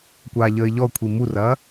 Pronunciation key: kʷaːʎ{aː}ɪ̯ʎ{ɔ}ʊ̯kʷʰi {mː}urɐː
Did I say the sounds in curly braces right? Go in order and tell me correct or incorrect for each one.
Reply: incorrect: əː, correct, incorrect: m

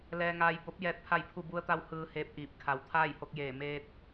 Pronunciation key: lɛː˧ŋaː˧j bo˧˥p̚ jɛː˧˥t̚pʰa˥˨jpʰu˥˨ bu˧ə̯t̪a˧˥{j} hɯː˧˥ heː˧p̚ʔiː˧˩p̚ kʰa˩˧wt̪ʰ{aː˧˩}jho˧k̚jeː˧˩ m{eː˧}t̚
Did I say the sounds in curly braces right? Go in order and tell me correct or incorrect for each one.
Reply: incorrect: w, incorrect: aː˥˨, correct

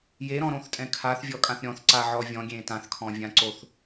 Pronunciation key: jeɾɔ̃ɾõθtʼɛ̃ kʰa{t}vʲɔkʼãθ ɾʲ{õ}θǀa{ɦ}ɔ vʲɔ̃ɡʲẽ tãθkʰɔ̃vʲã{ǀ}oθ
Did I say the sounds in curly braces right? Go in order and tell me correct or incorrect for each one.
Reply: incorrect: θ, incorrect: ɔ̃, incorrect: ʕ, correct

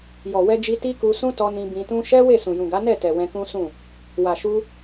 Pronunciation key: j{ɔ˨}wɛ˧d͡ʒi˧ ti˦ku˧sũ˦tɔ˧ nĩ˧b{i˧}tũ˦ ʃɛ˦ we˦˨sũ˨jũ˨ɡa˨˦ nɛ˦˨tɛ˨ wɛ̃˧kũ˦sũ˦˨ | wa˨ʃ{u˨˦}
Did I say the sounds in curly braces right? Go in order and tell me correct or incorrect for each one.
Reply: correct, incorrect: ĩ˧, incorrect: u˧

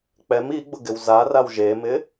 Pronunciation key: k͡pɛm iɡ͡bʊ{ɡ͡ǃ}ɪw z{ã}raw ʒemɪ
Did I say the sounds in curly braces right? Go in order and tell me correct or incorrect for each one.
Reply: incorrect: ɡ, incorrect: a

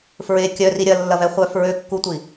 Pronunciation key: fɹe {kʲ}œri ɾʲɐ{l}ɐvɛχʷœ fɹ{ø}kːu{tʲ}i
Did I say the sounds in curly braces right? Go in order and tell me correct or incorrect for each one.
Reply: correct, incorrect: lː, correct, incorrect: tʷ

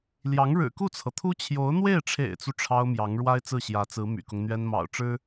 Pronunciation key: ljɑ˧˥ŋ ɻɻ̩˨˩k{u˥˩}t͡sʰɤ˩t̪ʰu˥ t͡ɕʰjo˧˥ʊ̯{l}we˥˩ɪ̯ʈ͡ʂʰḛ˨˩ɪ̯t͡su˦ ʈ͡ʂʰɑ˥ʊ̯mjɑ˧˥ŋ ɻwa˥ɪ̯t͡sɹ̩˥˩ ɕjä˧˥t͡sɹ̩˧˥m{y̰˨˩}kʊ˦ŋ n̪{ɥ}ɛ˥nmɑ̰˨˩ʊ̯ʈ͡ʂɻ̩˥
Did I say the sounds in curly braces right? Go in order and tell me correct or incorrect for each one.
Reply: correct, incorrect: n̪, correct, correct

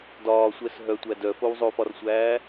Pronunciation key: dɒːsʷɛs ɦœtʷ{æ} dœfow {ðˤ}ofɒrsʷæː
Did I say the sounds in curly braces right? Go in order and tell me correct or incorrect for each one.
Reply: correct, incorrect: zˤ

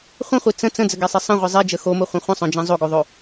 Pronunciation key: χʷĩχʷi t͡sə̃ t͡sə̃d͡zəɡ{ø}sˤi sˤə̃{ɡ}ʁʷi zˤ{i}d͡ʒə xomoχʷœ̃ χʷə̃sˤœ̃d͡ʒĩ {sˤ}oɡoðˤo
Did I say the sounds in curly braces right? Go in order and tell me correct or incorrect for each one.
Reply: incorrect: ɛ, incorrect: none, correct, incorrect: zˤ

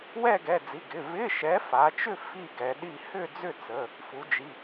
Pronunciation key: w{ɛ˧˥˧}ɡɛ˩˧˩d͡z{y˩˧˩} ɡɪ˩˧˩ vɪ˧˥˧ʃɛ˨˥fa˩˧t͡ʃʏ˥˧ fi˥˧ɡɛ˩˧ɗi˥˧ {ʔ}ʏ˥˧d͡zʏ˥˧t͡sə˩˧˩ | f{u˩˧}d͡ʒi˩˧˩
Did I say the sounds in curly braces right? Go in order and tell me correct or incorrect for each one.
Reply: incorrect: ɛ˥˧, incorrect: i˩˧˩, incorrect: h, correct

